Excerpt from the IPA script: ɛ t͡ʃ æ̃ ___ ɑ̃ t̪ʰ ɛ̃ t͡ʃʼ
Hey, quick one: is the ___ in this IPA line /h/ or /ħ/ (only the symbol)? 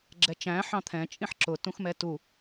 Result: ħ